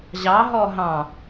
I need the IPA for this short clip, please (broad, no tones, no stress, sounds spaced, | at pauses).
ʑ ɑ ɦ ɔ ɦ ɑ̃